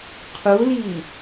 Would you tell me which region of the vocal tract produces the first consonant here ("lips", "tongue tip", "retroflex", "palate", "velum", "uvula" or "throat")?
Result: uvula